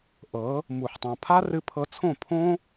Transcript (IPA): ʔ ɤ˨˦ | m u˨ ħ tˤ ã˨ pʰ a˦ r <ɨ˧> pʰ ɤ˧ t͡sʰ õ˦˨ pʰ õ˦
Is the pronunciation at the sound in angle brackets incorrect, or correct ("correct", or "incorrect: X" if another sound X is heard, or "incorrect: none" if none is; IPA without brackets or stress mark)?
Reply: correct